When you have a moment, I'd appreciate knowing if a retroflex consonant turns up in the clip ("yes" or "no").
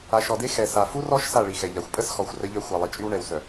yes